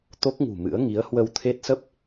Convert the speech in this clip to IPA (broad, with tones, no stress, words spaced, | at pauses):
t̪o˦˥k̚ŋṳ˨˩ mɨ̰˧˥ə̯ ŋi˨˦ə̯hwə˧wt̪ʰe˦˥t̚ sə˦˥p̚